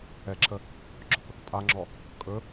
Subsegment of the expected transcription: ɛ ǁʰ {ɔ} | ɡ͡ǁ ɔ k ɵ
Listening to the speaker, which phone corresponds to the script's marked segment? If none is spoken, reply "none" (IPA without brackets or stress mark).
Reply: ə